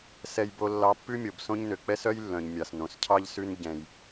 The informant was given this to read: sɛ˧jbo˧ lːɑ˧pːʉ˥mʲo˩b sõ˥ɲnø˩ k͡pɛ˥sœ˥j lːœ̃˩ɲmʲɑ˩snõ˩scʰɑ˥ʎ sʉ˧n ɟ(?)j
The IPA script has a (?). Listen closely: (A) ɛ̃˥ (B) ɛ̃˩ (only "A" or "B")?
B